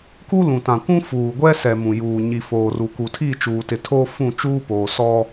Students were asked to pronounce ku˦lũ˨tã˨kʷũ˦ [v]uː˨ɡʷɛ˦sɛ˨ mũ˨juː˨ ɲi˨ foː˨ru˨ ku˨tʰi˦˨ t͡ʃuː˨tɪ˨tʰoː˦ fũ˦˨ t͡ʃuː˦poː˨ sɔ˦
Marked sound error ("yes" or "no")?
yes